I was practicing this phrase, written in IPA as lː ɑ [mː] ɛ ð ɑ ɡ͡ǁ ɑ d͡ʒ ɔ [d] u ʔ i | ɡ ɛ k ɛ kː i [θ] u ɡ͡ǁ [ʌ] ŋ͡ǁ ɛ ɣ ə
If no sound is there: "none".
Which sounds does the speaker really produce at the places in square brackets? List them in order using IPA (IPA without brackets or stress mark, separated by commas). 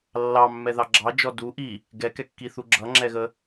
mː, d, θ, ʌ